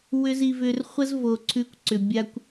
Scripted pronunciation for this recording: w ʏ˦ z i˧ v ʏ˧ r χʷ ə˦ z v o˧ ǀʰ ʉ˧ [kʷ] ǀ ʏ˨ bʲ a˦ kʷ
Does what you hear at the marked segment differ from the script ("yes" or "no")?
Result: no